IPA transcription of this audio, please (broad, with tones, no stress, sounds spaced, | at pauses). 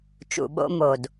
t͡ʃ ṵ˨ ɓ o̰˧ m o˨ d